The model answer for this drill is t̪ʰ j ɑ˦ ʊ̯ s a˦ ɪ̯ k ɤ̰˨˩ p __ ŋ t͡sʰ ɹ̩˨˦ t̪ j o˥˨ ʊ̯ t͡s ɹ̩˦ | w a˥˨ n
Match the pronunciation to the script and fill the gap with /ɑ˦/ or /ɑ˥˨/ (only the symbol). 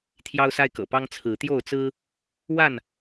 ɑ˦